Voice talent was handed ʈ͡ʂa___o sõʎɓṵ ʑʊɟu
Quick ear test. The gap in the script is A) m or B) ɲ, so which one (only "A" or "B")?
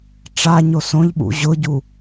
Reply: B